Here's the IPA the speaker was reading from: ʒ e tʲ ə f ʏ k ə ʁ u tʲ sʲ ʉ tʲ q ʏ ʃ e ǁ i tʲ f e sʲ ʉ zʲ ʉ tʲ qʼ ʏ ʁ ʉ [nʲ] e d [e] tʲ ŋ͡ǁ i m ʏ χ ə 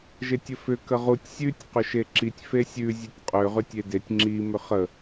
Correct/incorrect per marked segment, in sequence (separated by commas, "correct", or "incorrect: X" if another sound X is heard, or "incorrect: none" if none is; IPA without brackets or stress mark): incorrect: tʲ, correct